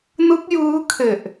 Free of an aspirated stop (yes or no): no